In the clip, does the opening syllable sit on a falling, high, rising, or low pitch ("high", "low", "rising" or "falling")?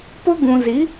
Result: high